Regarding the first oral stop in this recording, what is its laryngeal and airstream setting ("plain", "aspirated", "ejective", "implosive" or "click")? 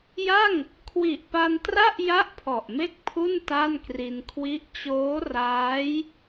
aspirated